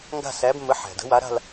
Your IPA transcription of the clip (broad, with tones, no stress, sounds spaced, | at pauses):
ŋ ɡ a̤˥˧ s æ˨˥ b mː ə˨˥ ħ æ̤˩ d ə̤˨˥ w a˨˥ ɾ a̤˥˧ l